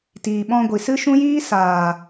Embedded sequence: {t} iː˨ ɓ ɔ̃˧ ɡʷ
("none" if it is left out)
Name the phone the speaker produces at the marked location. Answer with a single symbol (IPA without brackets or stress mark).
t